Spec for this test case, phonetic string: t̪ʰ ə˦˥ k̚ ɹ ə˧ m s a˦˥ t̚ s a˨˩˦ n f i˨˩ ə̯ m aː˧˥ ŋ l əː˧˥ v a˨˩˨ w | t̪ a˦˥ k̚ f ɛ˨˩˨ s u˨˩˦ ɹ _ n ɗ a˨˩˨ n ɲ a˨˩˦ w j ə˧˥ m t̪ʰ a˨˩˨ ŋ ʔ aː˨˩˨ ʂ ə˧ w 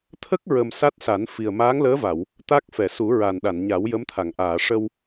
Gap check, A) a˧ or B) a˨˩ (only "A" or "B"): B